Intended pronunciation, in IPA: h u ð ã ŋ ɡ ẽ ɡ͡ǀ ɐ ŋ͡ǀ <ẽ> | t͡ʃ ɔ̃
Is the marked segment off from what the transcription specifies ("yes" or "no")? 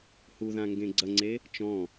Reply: yes